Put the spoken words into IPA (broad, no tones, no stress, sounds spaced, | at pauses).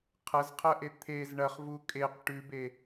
qʰ ɐ z qʰ ɐ ʔ e t̪ʰ e z ɳ ɐ χ v u kʼ e q ʈ ʉ b e